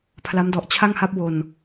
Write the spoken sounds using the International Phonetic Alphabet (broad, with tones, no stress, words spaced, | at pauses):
pʰla˦˥mdɔ˨˩ʔ t͡ɕʰa˥˩ŋ ha˥˩p̚ wo˧n